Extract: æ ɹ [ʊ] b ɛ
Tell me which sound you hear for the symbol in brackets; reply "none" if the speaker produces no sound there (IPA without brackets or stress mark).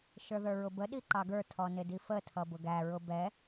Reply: ʊ